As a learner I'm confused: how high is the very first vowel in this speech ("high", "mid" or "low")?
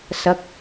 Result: low